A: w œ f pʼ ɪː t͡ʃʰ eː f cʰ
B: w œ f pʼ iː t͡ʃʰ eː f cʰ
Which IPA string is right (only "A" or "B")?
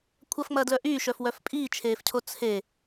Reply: B